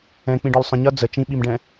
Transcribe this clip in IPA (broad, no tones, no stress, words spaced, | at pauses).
ɛ̃k͡pĩɖɒl sˤə̃ ɲʌ d͡zə t͡ʃĩɓimɖɛ̃